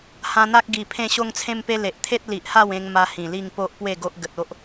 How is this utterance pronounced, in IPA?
h ã˧ n̪ a˦ k̚ ɡ i˨˩ pʰ ẽ˦ ɕ o˦ ŋ t͡sʰ ẽ˦ m p e˦ l e˨ ʔ t̪ʰ e˦ t̚ l i˨ ʔ h a˥˧ w ẽ˧ ŋ m a˧ h ĩ˨˩ l i˥˧ ŋ p o˦ ʔ p w e˥˧ ɡ o˦ ʔ ɡ ə˨ t̚ o˦ ʔ

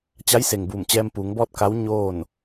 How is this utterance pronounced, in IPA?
t͡ɕ a˧˥ j s e˩ ŋ b uː˧˩ m t͡ɕ ɛː˧ m p uː˩˧ ŋ b ɔː˥˨ t̚ k a˧˥ w ɲ oː˥˨ n

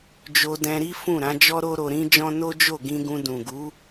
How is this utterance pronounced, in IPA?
d͡ʒ o˧ d ɛ̃˧ ɾ i˦ f ũ˦˨ ɾ ã˨˦ d͡ʒ ɔ˦ ɾ o˦ ɾ o˧ ɾ ĩ˦ d͡ʒ ɔ̃˦ n o˦ d͡ʒ o˦˨ ɡ ĩ˧ ɡ ũ˧ d ũ˨ ɡ u˨˦

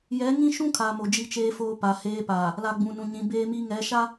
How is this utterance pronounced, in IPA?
j ɛ˨˦ ŋ ĩ˦ ʃ ũ˦ kʰ a˨ m o˨ d͡ʒ i˦ t͡ʃ eː˦ f oː˦ p a˨ h eː˦ p aː˨ | l a˨ ɡ͡b ũ˨ n ũ˨ ɲ ĩ˨˦ b eː˦ m i˦ ŋ ɛ˨˦ ʃ a˦

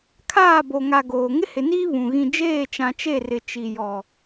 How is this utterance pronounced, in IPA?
kʰ aː˦˨ b o˨ ŋ a˨ ɡ oː˨ ŋ ɪ˦ h ɪ˨ n iː˦ β ũ˨ ɣ ĩ˨ d͡ʒ eː˦˨ t͡ʃ ã˨ t͡ʃ e˦˨ r ɪ˨ t͡ʃ i˨ j ɔ˨

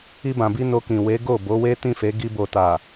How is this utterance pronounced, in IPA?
i˧ b ã˨ b i˧ n o˧ k ĩ˨ w e˨˦ ɡ o˦˨ b o˨˦ w e˦ t ĩ˦˨ f e˨˦ ɡ i˧ b o˨ t a˨

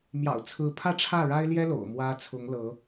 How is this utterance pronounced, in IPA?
m j ɑ̰˨˩ ʊ̯ t͡sʰ ɹ̩˧˥ pʰ ä˥˧ ʈ͡ʂʰ ä˥˩ ɻ a˥ ɪ̯ l j ɛ˥ l o̰˨˩ ʊ̯ m w ä˥ t͡sʰ ʊ˧˥ ŋ l ɤ˧˥

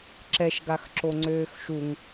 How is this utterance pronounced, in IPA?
ǁ ɛ ʃ ɡ a x ǁ o ŋ͡ǀ øː x ʃ u ŋ

